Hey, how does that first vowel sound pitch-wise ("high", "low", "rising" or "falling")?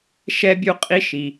high